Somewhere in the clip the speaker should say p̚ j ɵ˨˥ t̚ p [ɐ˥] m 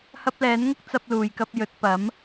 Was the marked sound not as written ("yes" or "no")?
yes